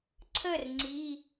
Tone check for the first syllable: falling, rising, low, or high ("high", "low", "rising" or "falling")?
falling